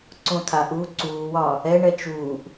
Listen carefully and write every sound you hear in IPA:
ǀõt̪ʰaʔuː ǀuːwɒ | ɛɳɛ t͡ʃuːʔ

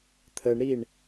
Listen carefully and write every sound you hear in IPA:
t̪ʰəɳɾiɳ

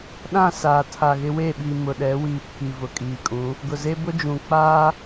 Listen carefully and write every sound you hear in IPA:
ɗã˦˨ saː˨tʰa˨ɣɪ˦ we˦˨ɓi˨ mʊ˨ɗɛ˨˦wiː˨pʰi˨ vʊ˨kʼiː˨ kʼũ˨˦ | ɡʊ˨ze˦bʊ˦ d͡ʒũ˨k͡paː˦

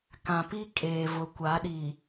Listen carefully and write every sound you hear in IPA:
kã˨pi˦ kʼeː˨vʊ˨ kʷa˨˦ɗi˨

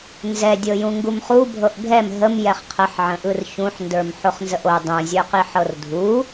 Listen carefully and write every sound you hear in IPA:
nzɛdʲɤ jũŋɡumχubʱɤʔ ɡʱɛm ɦəm jɛχqʰəħʕə̃ʔɯr çũħndə˞m ħoχnzəʔo dˤũzʲə˞qi ħɤrdʱu

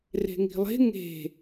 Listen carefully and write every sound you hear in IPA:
re̤ŋi̤lˠe̤ ŋe̤

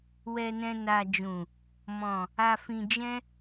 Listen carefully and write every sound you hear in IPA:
wɛ˨nɛ̃˨ na˨d͡ʒũ˨ | mɔ̃˨ | a˨fĩ˨d͡ʒɛ̃˧

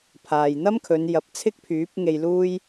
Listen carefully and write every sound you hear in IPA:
pʰaː˨jn̪ɐ˥mkʰɵ˨˧njɐ˨˥p̚ t͡sʰɪ˥k̚pʰyː˨˥p̚ŋe˧j luː˥j

